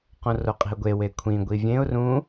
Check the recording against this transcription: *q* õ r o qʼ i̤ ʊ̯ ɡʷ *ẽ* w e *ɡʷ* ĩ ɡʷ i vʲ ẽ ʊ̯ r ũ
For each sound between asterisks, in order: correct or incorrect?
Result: correct, incorrect, incorrect

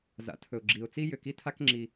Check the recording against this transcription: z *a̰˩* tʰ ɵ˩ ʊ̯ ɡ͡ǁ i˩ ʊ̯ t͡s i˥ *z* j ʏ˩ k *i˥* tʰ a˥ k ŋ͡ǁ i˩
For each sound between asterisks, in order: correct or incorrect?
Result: correct, incorrect, correct

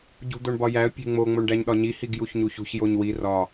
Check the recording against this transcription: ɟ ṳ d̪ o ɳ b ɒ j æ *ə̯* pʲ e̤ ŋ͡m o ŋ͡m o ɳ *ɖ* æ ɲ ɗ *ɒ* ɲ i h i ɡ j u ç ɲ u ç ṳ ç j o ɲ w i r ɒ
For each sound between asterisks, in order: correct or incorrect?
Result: correct, correct, correct

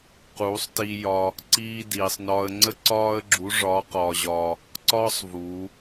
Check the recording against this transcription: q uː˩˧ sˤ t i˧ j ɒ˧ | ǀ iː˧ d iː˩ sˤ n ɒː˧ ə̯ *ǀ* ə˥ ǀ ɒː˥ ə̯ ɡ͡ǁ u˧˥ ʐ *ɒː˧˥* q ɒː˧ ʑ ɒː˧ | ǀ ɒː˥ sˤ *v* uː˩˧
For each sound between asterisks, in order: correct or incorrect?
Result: incorrect, correct, correct

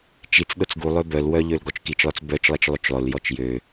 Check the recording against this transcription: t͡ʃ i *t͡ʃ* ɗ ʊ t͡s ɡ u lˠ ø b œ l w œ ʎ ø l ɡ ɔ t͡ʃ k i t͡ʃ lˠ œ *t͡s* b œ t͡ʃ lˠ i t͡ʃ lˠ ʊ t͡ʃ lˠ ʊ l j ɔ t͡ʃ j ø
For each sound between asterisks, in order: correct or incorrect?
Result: incorrect, correct

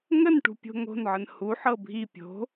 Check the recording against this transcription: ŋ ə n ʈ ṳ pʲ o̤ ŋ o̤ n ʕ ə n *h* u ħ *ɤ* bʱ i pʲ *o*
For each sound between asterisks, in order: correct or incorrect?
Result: correct, correct, incorrect

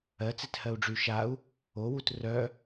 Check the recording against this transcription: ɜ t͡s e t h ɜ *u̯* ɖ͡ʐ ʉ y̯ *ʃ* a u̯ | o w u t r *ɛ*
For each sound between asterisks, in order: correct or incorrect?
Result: correct, correct, incorrect

